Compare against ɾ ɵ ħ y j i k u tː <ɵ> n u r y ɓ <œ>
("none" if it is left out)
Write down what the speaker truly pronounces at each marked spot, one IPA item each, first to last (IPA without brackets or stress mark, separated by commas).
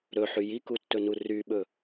ɵ, ɵ